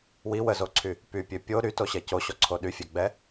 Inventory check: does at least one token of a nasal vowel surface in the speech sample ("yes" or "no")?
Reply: no